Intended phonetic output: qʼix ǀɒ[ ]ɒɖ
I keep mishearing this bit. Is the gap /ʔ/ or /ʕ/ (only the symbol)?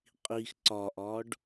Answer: ʔ